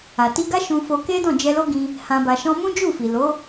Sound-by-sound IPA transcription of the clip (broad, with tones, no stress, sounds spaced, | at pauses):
a˨ t i˧ ɡ a˦ ʃ ũ˧ f o˧ k e˦ d ɔ̃˦˨ d͡ʒ ɛ˧ l o˦ ɡ ĩ˧ | h ã˧ b a˧ ʃ ɔ̃˦ m ũ˦ d͡ʒ u˦˨ f i˨ l o˨˦